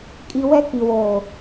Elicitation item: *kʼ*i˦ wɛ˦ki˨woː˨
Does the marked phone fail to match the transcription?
no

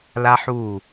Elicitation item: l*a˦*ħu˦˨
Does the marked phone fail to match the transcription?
no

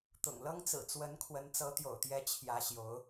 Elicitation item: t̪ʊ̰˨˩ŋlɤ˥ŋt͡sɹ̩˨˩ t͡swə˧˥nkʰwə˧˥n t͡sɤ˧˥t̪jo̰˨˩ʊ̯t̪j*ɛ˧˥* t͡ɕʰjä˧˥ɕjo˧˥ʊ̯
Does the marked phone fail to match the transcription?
no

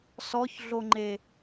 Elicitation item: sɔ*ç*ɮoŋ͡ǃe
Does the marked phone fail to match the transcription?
no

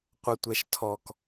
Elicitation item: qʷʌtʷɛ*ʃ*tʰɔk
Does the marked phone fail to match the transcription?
no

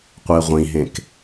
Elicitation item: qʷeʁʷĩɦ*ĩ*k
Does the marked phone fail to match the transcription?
yes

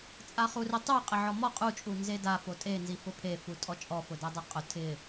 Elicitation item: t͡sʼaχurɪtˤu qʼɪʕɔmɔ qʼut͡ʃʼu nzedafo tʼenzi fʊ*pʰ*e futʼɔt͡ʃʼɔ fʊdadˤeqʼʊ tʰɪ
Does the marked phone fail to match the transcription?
no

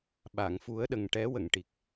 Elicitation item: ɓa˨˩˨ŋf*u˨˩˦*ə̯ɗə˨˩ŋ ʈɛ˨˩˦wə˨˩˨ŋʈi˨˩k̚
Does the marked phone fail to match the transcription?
no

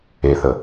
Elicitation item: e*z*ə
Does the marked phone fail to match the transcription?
yes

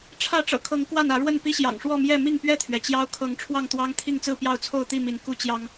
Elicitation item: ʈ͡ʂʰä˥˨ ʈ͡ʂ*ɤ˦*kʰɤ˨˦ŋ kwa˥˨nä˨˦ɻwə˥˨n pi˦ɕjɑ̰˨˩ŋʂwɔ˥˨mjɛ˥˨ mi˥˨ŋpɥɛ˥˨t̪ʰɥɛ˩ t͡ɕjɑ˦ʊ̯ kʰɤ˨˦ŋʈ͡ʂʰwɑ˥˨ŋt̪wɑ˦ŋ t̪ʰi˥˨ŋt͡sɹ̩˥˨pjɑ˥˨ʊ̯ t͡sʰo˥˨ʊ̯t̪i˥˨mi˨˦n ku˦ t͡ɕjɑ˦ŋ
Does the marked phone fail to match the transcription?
yes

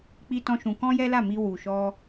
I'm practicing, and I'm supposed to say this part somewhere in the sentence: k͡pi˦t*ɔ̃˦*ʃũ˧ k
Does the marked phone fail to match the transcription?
no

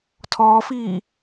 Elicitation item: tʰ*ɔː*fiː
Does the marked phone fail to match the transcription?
no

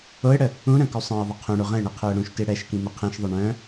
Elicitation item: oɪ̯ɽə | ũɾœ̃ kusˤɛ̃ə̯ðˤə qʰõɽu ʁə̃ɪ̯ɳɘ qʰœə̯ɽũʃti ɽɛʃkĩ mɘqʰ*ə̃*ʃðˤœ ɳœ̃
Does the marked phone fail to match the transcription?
yes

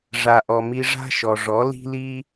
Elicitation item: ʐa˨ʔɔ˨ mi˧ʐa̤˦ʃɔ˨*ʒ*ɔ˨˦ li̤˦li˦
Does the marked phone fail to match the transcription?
yes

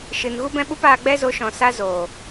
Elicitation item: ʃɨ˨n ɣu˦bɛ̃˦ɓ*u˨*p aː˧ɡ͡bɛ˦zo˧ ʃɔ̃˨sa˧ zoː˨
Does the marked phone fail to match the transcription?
yes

